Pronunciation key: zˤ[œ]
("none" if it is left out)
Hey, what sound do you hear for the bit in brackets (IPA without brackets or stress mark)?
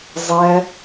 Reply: ɛ